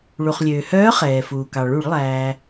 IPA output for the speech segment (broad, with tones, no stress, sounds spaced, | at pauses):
ɭ u˩ χ lʲ øː˩ h œː˧˥ χ ɛː˩ f uː˩ k ɑ˩ ɭ u˧˩˧ ɭ lˠ æː˩